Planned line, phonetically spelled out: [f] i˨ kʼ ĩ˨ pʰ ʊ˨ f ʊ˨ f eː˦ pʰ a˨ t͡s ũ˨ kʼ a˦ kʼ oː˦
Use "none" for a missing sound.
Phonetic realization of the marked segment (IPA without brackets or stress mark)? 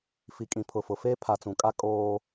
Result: f